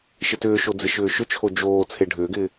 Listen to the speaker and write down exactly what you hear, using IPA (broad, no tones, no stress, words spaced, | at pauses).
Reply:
ʃɪtʏːʃo d͡zɪʃʏːʃʏt͡ʃʰo d͡ʒoː t͡sʰeɖʱʏːɡɪː